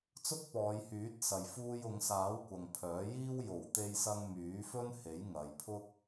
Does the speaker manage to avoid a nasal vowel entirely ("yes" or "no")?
yes